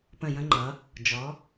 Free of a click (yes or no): no